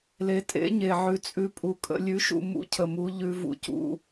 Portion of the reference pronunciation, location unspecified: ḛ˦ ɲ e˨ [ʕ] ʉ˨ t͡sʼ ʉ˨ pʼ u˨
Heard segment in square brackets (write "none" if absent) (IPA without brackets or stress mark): ʕ